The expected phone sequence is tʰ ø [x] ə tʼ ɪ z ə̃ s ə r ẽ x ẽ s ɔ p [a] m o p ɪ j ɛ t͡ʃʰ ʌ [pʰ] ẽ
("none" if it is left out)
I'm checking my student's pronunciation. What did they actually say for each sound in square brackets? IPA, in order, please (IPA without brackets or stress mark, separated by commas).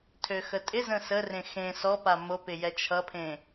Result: x, a, pʰ